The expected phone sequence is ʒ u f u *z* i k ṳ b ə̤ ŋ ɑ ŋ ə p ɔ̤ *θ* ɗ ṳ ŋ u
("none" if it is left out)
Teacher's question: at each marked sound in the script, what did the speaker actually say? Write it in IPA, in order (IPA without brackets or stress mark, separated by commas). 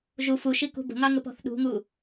ʃ, θ